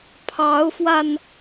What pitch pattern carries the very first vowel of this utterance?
rising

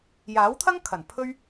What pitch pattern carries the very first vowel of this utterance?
rising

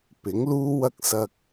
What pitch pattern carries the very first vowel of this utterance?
rising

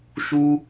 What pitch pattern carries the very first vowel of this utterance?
high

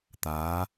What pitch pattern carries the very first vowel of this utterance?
rising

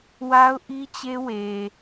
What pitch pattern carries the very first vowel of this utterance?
high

